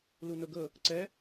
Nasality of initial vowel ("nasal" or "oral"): oral